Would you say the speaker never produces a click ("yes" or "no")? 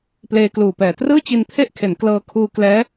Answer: yes